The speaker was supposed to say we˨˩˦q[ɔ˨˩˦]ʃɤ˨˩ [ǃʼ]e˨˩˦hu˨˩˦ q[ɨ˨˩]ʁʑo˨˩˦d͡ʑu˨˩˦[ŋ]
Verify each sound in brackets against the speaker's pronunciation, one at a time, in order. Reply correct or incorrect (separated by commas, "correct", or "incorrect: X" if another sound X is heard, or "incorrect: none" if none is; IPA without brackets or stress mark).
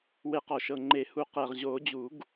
incorrect: ɔ˨˩, incorrect: ŋ͡ǃ, incorrect: ɛ˨˩, incorrect: ɡ